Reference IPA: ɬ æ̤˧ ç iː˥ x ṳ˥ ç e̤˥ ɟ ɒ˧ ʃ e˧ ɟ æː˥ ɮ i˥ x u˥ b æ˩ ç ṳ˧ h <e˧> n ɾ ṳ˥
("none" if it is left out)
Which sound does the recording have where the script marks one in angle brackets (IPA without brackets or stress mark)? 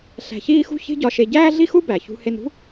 e˧